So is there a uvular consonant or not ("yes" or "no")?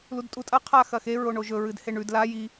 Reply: yes